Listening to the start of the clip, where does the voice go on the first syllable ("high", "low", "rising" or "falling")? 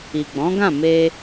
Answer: low